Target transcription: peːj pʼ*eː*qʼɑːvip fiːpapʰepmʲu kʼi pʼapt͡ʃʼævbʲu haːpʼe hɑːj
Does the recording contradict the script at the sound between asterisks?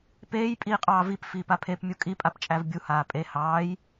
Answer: yes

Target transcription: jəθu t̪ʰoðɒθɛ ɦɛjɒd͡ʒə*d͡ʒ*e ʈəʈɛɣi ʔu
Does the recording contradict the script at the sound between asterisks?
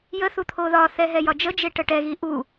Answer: no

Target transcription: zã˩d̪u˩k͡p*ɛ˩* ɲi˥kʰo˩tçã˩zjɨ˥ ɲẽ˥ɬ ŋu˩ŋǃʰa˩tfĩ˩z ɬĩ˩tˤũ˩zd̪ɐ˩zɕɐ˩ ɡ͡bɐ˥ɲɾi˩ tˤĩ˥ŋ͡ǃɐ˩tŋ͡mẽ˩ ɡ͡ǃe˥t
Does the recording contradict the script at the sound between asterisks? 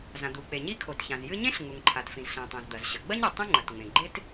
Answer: yes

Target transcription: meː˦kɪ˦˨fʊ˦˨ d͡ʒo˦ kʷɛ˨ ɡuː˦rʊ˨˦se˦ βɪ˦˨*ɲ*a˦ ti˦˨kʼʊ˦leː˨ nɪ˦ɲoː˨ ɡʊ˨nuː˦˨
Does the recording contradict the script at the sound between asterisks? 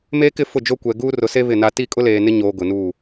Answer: yes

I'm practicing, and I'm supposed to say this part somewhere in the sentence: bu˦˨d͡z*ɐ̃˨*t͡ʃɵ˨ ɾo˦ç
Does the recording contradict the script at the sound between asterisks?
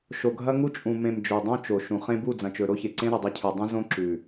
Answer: no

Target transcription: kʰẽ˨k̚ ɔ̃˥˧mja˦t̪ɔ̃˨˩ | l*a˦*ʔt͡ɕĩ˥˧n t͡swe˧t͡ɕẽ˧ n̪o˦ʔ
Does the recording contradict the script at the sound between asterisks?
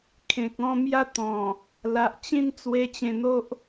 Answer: yes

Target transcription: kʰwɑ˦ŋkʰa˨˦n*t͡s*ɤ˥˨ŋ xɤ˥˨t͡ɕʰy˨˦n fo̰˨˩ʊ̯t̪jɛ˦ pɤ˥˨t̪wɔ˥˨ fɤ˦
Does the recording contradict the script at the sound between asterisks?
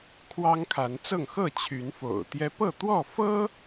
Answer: no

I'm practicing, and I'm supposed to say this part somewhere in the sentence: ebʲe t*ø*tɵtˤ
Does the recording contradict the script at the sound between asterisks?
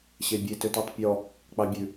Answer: no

